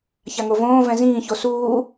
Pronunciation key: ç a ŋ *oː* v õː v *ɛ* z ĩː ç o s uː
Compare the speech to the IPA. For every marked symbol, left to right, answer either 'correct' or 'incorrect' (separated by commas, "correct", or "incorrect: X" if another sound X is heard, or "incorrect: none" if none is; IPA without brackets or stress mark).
incorrect: o, incorrect: ɛ̃